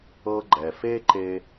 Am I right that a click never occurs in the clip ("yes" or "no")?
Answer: no